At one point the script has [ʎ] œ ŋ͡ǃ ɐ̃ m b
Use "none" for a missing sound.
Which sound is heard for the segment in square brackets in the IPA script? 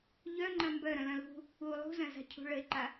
ʎ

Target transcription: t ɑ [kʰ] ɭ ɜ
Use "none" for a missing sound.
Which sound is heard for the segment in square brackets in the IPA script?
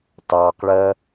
q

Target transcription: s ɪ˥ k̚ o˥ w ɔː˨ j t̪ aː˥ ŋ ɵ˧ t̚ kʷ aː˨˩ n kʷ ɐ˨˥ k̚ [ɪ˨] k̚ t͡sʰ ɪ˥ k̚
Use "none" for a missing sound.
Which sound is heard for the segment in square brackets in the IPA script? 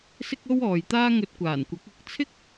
ɪ˨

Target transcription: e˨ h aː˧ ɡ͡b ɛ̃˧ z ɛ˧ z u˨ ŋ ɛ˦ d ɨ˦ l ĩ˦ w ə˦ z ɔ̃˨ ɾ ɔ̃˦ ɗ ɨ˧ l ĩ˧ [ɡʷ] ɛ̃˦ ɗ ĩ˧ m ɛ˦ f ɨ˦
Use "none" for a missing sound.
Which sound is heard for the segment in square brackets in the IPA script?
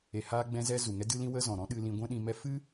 ɡʷ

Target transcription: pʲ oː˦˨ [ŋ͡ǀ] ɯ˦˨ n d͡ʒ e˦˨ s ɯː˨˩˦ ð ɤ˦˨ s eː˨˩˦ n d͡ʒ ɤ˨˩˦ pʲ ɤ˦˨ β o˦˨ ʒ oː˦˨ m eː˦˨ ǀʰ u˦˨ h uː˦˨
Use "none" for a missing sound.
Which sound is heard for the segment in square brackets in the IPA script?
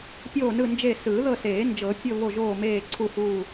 n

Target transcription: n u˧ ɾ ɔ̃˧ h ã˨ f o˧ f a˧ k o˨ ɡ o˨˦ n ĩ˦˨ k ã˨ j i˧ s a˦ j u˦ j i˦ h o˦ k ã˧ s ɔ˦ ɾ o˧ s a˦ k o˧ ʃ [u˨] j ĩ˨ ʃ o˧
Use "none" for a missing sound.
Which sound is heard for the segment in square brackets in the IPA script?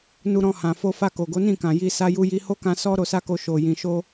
o˨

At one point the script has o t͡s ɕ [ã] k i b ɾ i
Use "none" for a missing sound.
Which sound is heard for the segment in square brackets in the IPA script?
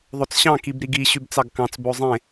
ɑ̃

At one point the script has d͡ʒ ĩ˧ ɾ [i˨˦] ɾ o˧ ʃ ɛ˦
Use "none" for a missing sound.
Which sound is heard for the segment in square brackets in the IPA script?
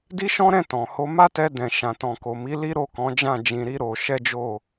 i˦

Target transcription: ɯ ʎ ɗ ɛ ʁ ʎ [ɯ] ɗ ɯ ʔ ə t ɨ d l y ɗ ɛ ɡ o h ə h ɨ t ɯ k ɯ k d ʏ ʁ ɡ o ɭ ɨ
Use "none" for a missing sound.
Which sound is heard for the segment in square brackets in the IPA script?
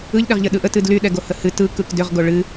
ə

